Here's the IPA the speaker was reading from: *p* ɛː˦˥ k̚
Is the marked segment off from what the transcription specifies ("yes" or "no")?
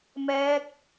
yes